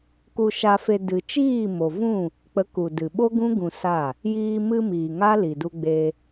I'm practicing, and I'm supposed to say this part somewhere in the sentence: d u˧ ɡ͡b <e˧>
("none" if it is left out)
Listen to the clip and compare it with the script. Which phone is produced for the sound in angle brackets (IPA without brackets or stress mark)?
e˧